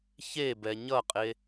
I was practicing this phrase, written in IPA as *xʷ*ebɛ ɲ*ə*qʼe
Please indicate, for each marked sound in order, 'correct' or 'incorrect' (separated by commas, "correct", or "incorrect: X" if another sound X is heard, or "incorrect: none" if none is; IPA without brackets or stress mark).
incorrect: ç, incorrect: ʌ